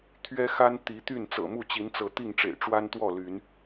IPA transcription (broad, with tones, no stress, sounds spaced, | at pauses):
t̪ʰ ɥ ɛ˦ x a˦ n t̪ i˨˦ t̪ y˥˨ n t͡s ɤ̰˨˩ m u˥˨ t͡ɕ i˨˦ n t͡s ɤ˨˦ t̪ i˥˨ ŋ ʈ͡ʂ ḛ˨˩ ɪ̯ ʈ͡ʂ w a˦ n t̪ w ɔ˥˨ l y˨˦ n